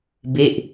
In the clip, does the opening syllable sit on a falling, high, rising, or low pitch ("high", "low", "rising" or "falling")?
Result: falling